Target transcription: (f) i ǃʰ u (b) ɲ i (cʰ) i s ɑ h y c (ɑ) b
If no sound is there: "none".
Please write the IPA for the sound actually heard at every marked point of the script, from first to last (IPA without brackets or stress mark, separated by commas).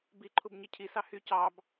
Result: b, b, cʰ, ɑ